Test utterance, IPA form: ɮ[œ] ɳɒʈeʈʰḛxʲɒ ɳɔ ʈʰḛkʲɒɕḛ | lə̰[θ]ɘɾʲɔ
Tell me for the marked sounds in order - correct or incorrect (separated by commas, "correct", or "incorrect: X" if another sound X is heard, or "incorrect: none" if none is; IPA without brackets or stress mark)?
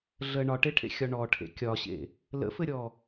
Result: incorrect: ə, incorrect: f